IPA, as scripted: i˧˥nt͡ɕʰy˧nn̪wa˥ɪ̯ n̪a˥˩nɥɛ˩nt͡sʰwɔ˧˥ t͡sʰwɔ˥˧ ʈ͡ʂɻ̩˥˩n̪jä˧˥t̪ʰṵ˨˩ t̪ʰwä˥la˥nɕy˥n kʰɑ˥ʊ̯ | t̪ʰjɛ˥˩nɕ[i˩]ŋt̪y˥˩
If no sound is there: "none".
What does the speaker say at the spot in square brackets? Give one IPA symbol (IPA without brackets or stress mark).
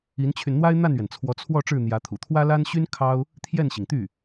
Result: i˩